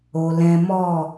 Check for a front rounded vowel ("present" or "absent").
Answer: absent